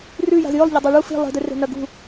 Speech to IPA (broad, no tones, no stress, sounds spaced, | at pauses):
r ʉ j a̤ z j ɵ lˠ ʎ ɐ dˤ e ɭ u f i̤ lˠ i̤ d e r e̤ n ɐ ɡ ṳ